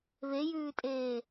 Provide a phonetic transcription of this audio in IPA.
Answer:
βejʉːtʼeː

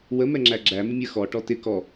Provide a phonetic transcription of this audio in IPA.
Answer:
wə mɛŋ͡ǁæɡ͡ǁæ mɪmʲə xɔ ʈɔtɪ kɔ

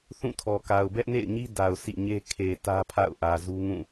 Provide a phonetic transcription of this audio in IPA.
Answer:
θũ˦˨tʰɔ˨ka˨ʊ̯ bɛ˦ʔnḛ˦˨ɪ̯ɲi˦ da˨ʊ̯sḭ˦˨ɲe˦ kʰe˨ tä˦pʰa̰˦˨ʊ̯ʔä˨ zu˦ŋũ˦˨

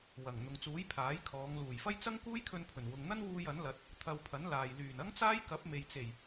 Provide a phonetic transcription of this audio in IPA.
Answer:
wɐ˨˩ŋ n̪ʊ˨ŋt͡suː˨˥j pʰaː˨˥jkʰɔː˨˧ŋ luː˨˩jfɐ˥jt͡sɐ˥ŋ kuː˥jkʰɵ˧npʰɵ˨˩n wʊ˨ŋn̪ɐ˥nwuː˧j ɐ˨˥nlɐ˨˥t̚ | t̪ʰɐ˧wpʰɐ˨˥nlaː˨j lyː˨˩n ɐ˥ŋt͡saː˥jkɐ˨˥p̚ me˨jt͡se˨˩j

